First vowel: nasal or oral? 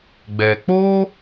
oral